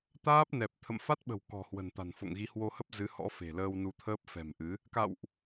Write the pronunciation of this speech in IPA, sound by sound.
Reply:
t̪ aː˦˥ p̚ n ɛ˨˩ p̚ t̪ʰ ə̰˧˨ m f a˦˥ t̚ ɓ ə̤˨˩ w k ɔ̤˨˩ h w ə̤˨˩ n t̪ a̤˨˩ n f o̰˧˨ ŋ ɣ i˨˦ h w o˧ h ə˦˥ p̚ z ɨ˨˦ h ɔ̰˧˥ f e̤˨˩ l əː˧ w n u˧ t̪ʰ əː˦˥ p̚ f ɛ̤˨˩ m ʔ ɨ˨˦ | k a̰˧˨ w ʔ

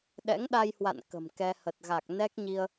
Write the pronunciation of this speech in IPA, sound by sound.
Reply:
ɗ ɛ̰˧˥ ŋ ɗ a˧ j h w a̰˧˨ n k ə̤˨˩ m k ɛ˧ h ə˨˩ t̚ ɣ a˨˩ k̚ n ɛ˦˥ k̚ ɲ i˧ ə̯

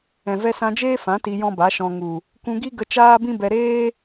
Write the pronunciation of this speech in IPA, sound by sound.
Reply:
ɛ̃˨ v ɛ˧ s ã˧ d͡ʒ eː˦ f ã˨˦ t i˧ j ɔ̃˦ b a˨˦ ʃ ɔ̃˧ ŋ u˨ | k ũ˧ ɡ i˦ ɡ ə˧ t͡ʃ aː˦ b ĩ˦ b ɛ˧ ɾ eː˦

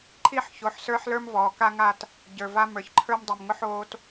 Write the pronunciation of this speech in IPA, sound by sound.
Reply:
ǃʰ i˦ ħ ç o˨ ħ s ə˞˦ ħ l ə˞˦ m v ɔː˨ k a˦ ŋ a˦˨ t | ɟ ə˞˨ v a˦ m ə˞˨ ç ǃʰ ə˞˦ m dˤ i˨ m ŋ ʊ˦ ħ oː˦ t

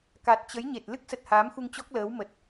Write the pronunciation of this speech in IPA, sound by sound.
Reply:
k a˨˩ t̚ t͡ɕ ə˨˦ j ɲ e˨˩ t̚ l ɨ˦˥ k̚ s ə˨˩ t̚ h aː˨˦ m x u˧ ŋ t͡ɕ ɔ˦˥ k̚ l əː˨˦ w m ə˨˩ t̚

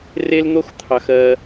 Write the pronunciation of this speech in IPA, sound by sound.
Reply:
r e˥ l n̪ o˥ x t̪ʰ ɑ˩ x ɜ˩

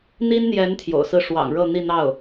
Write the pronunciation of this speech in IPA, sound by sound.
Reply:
n̪ i˥ n n̪ j ɛ˧˥ n t̪ʰ j o̰˨˩ ʊ̯ s ɹ̩˥˩ ʂ w ɑ̰˨˩ ŋ ɻ ɤ˥˧ n̪ i˥˧ n̪ ɑ˥˩ ʊ̯

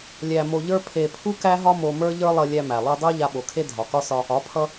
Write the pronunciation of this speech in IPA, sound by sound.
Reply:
lʲ æ˧ m o˧ ʎ ə˞˦ pʰ e˧ pʰ u˦ k æ˦ ɦ ɒ˦ m o˧ m ə˞˦ ʎ ə˞˦ lˠ ʌ˧ lʲ æ˧ m æ˨ lˠ u˧ dˤ ə˞˦ ʎ a˧ ɓ o˨ kʰ e˦ dʱ ɒ˨ k ɒ˦ s ɒ˧ | ɒ˨˦ pʰ ʌ˧

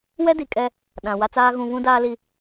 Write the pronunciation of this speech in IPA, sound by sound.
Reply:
w ɛ˦ d i˨ kʼ ɛ˦ | ɗ ã˨ w a˦ t͡s aː˦ ɣ ũ˨ β ũ˦ d aː˦ l i˦

